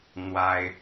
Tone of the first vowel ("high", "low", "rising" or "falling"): high